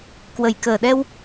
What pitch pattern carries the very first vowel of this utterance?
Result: low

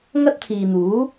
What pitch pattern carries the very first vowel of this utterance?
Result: high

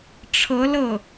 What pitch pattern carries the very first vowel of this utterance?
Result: rising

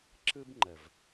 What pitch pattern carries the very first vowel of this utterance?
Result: high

